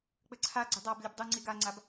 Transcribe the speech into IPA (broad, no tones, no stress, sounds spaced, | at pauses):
k͡p ɘ ǀʰ a ɡ͡ǀ ɘ dˤ a b lʲ ɘ b dˤ u ŋ͡ǀ i ɡ a ŋ͡ǀ a b